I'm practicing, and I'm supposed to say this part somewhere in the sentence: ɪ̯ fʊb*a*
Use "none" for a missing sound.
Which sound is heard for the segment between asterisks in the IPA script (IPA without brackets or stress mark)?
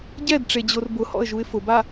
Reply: a